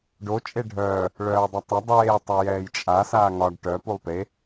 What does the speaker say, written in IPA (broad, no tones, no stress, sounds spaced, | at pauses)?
ɖ o t͡ʃʼ e ɖʱ œː | ɭ œː ɐ̯ dˤ ɐ tˤ ɐ dˤ eː tˤ ɐ j ɛː j t͡ʃʼ a s aː ŋ ɒ ɖ ʈ œ p u lˠ p e